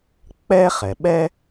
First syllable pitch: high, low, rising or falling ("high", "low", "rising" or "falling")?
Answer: high